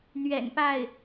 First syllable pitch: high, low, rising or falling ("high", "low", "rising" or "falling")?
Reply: low